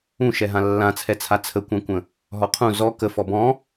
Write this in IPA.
ũ ʃ ɛ ɦ ã lː ã t͡sʰ ɛ t͡sʰ a t͡sʰ ə kʷ ã kʷ ə̃ | ɦ ɔ qʰ ũ z ɔ k ə f ɔ b ɔ̃

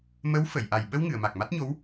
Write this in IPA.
m ə˧˥ w f ə˨˩˨ j ʔ a˨˩ j ɓ ə˧ w ŋ ɨ˨˩˨ ə̯ m a˨˩ k̚ m a˦˥ t̚ ɲ o˧˥ w

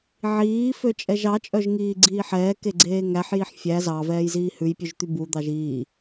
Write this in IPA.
ʕ iː f ø t͡ʃʼ ɛ ʒ ɑ t͡ʃʼ œ ʒ ŋ iː ɡ͡ǀ iː ħ ɛː k e ɡ͡ǀ eː ŋ æ ħ j i ħ fʲ æ z ɑ v ɛː j z iː h ʉ j pʲ ʉ ʒ t̪ y b u d̪ ɑ ʒ iː

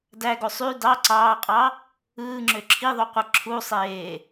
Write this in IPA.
d æ ɡ o sˤ y d ɑ ǀ ɑː qʼ ɑ | ɯː ŋ͡ǁ ø ǁʰ i ðˤ o qʷ ɯ ǁʰ u sˤ eː

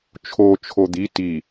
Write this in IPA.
t͡ʃʰ o t͡ʃʰ o d̪ i t i

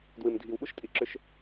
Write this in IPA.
d w ɨ˩ m dʱ i˩ w ɓ u˥ ʃ tʼ i˩ ǁ ʏ˧ ʃ

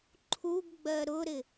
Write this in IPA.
ǃʰ u ɡ ɡ͡b ɜ ɾ ʊ ɾ ɪ

